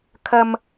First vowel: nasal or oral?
oral